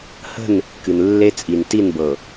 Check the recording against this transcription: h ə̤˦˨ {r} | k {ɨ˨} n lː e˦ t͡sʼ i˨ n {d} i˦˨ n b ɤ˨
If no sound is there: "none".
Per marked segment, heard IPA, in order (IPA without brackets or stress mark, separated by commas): n, ɨ˨, t